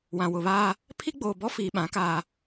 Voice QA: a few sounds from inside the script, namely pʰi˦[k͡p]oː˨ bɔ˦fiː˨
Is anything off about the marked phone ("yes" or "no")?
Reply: yes